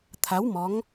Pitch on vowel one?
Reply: rising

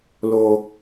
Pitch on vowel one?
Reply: low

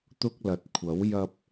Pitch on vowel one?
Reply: high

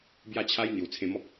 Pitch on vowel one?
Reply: falling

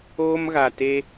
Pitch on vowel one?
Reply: high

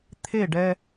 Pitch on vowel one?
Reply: falling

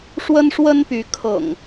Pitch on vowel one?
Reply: high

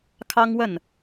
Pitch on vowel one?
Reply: high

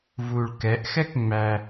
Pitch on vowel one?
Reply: low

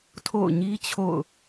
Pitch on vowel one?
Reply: falling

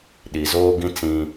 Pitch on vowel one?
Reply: low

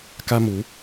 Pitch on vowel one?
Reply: high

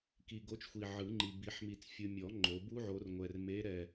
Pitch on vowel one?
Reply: low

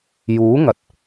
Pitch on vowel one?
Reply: rising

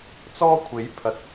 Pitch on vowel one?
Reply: high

